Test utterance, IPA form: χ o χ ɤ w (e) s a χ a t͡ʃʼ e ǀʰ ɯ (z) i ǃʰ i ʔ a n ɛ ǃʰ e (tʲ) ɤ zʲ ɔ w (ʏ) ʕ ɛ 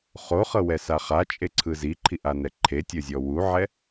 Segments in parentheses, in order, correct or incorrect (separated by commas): incorrect, correct, correct, incorrect